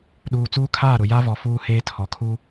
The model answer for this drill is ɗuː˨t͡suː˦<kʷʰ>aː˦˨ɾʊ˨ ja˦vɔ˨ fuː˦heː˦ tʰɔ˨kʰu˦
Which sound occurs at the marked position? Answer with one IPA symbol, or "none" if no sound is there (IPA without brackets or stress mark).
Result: kʰ